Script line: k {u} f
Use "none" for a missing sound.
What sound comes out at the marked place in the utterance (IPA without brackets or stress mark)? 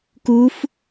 u